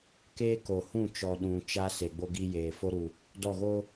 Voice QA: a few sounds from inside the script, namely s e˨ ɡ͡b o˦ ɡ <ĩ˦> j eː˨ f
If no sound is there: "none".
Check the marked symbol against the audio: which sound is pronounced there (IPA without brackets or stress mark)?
i˦